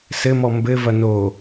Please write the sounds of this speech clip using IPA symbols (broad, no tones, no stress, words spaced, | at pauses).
sɘmɔ mbɘvɐ no